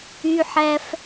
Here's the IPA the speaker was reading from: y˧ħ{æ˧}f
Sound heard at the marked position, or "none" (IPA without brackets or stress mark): æ˧